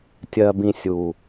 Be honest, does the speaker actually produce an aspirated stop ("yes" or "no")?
no